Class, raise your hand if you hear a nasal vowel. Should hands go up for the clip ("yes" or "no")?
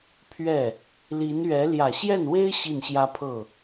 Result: no